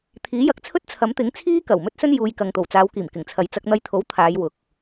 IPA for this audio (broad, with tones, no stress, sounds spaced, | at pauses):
t̪ʰ iː˨˥ j ɐ˨˥ k̚ t͡sʰ ɵ˥ t̚ t͡sʰ ɐ˨˥ m t̪ ɪ˨˥ ŋ t͡sʰ iː˥ k ɐ˨˩ w m ɵ˥ t̚ s ɵ˥ n j uː˨˧ j k ɐ˨ ŋ t̪ o˨˩ w t͡s aː˨˧ w k iː˨˩ m k ɪ˨˩ ŋ t͡sʰ ɐ˨ j t͡s ɐ˧ k̚ n̪ ɐ˧ j t̪ʰ o˨˥ w t̪ʰ aː˨˧ j w ʊ˨ k̚